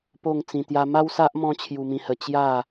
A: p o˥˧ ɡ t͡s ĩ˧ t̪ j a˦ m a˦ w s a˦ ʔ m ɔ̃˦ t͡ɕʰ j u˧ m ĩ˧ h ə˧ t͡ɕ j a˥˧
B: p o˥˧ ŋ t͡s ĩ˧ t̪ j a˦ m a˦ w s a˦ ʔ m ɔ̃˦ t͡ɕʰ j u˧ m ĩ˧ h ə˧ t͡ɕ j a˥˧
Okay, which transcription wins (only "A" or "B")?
B